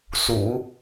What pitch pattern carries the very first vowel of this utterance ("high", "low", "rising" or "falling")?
low